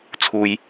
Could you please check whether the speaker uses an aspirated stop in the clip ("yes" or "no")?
yes